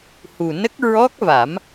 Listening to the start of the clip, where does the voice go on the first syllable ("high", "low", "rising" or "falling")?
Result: low